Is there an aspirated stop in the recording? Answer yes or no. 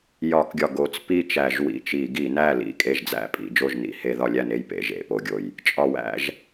no